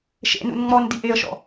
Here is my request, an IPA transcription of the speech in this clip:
ʃ ḛ n ṵ n ŋ͡m ɔ n d i ʔ e ə̯ ʃ ɔ̰

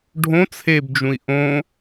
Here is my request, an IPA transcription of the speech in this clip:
ɖʱ õ t͡sʰ e b d͡ʒ ũ i̯ ʔ õ

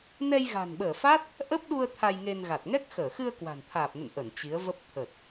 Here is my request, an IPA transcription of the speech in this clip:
n ɛ˧ j ɣ a̤˨˩ n ɓ əː˧˩ f a˦˥ t̚ | ʔ ə˦˥ p̚ ɗ u˧ ə̯ t̪ʰ a˧ j ŋ e˧ n ɣ a˨˩ t̚ ŋ ɛ˦˥ k̚ x əː˧˩ x ɨ˧ ə̯ k w a̤˨˩ n t̪ʰ aː˨˩ p̚ n ə̰˧˨ n ʔ ə˧˩ n t͡ɕ i˨˦ ə̯ v ə˦˥ p̚ t̪ʰ ə˨˩ t̚

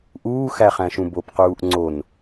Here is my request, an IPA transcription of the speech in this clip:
ʔ uː x æ χ æ̃ ʃ ũ b o p q uː ʔ ŋ͡ǀ o n

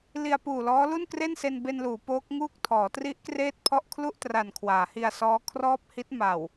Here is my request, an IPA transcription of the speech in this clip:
l i˧ a̯ p uː˨˩ l ɔː˦˥ l u˥˩ n k r e˥˩ n s e˧ n b e˧ n l uː˩˦ p oː˦˥ k̚ ŋ uː˥˩ k̚ tʰ ɔː˩˦ t r i˦˥ ʔ k r eː˥˩ t̚ pʰ ɔ˥˩ ʔ kʰ l u˥˩ ʔ t r a˨˩ n kʰ w aː˩˦ h i˧ a̯ s ɔː˦˥ kʰ r ɔː˥˩ p̚ h i˦˥ t̚ m a˨˩ w

